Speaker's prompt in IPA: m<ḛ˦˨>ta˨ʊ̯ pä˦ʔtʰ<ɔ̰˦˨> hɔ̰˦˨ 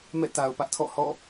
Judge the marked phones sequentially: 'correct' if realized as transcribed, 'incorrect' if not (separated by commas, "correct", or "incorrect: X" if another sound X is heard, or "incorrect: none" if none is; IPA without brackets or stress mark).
incorrect: ɛ̰˦˨, correct